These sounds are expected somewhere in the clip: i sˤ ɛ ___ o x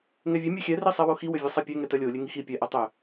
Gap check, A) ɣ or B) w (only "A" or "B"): B